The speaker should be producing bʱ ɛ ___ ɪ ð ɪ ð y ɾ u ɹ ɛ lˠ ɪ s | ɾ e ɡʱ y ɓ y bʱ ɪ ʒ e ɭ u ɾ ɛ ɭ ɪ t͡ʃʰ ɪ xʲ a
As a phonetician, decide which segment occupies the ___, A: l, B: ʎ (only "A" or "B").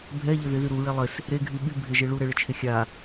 B